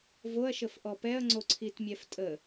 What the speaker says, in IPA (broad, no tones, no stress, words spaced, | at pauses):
voɐ̯ʃəfʔɔ pɛɐ̯ŋ͡ǀoǀʰitmʲɛf tʼə